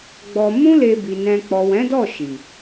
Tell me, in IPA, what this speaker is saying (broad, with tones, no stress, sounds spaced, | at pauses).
ɡ͡b ɔ˧ m ũ˦ l e˧ b i˨ n ɛ̃˧ k͡p ɔ˨ w ɛ̃˨˦ d ɔ˦˨ ʃ i˨